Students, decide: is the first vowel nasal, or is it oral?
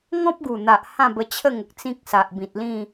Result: nasal